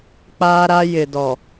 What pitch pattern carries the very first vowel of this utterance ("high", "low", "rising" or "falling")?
high